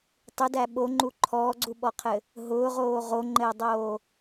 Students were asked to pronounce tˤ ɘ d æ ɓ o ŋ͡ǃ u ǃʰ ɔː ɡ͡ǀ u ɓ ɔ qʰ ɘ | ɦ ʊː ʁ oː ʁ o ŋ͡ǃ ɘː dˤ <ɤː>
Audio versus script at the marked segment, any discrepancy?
yes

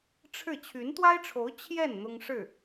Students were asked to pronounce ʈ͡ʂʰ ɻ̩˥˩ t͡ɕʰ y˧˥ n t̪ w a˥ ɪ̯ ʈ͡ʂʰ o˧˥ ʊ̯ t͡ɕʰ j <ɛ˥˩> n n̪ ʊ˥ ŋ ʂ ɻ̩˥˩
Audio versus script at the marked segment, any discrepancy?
no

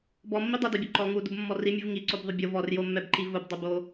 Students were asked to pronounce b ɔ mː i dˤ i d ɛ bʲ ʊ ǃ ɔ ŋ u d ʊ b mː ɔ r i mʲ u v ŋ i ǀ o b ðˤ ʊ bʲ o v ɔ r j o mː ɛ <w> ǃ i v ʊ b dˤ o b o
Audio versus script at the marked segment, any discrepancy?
yes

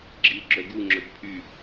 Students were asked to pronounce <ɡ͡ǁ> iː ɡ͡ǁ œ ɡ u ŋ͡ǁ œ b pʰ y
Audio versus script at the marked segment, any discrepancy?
no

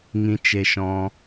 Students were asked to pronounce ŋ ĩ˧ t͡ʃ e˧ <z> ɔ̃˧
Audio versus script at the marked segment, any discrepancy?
yes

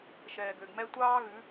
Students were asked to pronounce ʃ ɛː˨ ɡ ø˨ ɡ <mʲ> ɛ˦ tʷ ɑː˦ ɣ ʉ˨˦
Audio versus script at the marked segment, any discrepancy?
yes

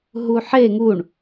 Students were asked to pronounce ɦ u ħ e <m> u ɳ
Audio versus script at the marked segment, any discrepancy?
yes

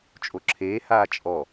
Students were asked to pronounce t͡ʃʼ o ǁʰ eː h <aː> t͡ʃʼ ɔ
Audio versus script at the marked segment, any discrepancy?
no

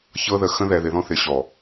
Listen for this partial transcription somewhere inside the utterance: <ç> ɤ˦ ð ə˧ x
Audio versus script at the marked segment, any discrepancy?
no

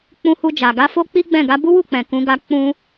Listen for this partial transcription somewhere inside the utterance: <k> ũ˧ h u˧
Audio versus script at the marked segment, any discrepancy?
yes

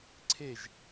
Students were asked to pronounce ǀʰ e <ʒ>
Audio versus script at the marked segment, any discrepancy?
no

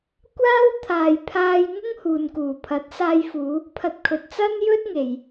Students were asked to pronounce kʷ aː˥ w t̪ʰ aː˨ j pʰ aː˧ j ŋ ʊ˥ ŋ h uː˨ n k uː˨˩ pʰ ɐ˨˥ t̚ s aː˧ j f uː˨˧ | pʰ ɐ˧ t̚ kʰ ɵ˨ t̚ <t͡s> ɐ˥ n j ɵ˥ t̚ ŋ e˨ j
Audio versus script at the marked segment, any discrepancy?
no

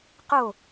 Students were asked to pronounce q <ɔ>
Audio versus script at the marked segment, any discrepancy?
yes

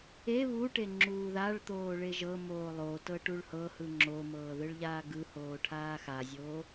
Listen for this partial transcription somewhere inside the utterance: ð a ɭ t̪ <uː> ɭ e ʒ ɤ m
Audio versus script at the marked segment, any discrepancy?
yes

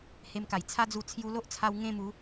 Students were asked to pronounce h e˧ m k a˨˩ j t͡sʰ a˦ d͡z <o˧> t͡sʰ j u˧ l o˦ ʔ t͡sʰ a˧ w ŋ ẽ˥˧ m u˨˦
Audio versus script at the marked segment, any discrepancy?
yes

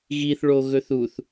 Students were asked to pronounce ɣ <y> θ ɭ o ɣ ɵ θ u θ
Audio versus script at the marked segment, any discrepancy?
yes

